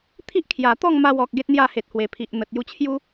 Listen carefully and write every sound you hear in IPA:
t̪ʰ i˦ ʔ kʰ j a˨˩ t̪ ɔ˥˧ ŋ m a˧ w ɔ˨ k̚ ɡ e˦ t̚ n̪ j a˥˧ h e˨ t̚ h w e˨˩ pʰ i˨ ʔ n̪ ə˨ t̚ j u˧ t͡ɕʰ j u˦

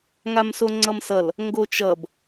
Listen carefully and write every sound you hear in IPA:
ŋ a m s o ŋ͡ǀ ʌ m s ʌ l | ŋ ɡ o t͡ʃ ʌ b

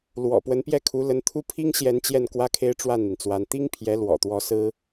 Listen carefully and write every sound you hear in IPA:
l w ɔ̰˨˩ p w ə˧˥ n p j ɛ˥˩ kʰ u˧˥ l ə˧˥ n t̪ʰ u˥ pʰ i˥ ŋ ɕ j ɛ˧˥ n t͡ɕ j ɛ˥˩ n k w ä˥ kʰ e˥ ɪ̯ ʈ͡ʂ w a˥˩ n n̪ i˩ n t͡s w a˧˥ n t̪ i˥ ŋ pʰ j ɛ˧˥ l w ɔ̰˨˩ t̪ w ɔ˧˥ s ɹ̩˥

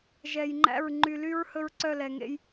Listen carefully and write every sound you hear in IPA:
ʒ ɛ˨ j ŋ͡ǃ æ̰˦˨ ɹ ŋ͡ǃ y˨ l y˦ ɹ h ɵ˦ ɹ ǀ œ˦˨ l ɛ˨ ŋ ḛ˦ j

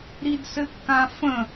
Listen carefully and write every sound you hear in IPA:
ɾ i d s ɘ kː ã f ə̃

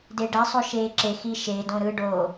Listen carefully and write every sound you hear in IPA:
d e ɖ æ sˤ o ʃ eː ǁ e x i ʃ e d õ ɾ ɯ ɖ o

